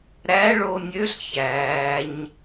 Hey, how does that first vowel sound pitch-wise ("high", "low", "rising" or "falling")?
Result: rising